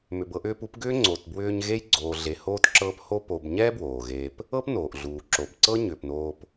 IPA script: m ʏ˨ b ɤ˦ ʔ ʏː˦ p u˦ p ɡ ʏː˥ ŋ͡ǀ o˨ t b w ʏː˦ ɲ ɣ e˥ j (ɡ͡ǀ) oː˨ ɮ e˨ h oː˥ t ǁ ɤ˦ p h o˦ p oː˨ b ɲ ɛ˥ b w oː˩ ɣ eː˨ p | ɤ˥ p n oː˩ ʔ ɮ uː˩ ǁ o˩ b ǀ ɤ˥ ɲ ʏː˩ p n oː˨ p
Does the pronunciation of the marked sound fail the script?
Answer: no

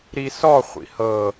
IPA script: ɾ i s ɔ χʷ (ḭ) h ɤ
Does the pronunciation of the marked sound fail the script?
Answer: no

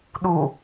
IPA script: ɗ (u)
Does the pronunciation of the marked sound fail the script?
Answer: no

